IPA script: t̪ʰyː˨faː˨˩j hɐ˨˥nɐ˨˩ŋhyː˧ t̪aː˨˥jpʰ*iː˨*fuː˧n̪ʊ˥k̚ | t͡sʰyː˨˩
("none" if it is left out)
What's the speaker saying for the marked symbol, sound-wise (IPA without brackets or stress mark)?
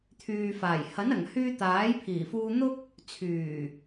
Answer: iː˨˩